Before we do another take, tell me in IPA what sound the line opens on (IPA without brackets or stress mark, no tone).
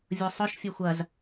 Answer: vʲ